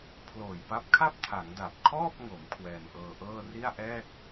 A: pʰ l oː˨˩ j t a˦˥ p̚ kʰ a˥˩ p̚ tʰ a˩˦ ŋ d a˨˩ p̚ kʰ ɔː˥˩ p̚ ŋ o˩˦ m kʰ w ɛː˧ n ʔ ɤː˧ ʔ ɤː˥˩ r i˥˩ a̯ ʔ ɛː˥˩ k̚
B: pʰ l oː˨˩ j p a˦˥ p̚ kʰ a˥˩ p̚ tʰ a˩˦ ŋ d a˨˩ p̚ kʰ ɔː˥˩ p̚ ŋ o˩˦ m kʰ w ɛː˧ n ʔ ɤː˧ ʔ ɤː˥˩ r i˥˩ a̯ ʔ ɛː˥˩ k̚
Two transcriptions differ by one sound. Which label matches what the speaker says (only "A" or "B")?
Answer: B